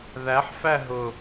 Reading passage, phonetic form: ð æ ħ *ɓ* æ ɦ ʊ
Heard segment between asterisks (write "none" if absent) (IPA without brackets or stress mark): f